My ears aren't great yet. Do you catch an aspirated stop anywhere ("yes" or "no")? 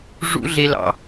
no